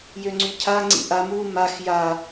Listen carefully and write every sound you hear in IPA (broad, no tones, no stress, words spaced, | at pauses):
jøŋ͡ǀycʰa ŋ͡ǀḭʔam u max ja